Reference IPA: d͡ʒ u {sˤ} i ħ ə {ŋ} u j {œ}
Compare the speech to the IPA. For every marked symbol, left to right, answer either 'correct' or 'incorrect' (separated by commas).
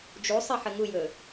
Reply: correct, correct, incorrect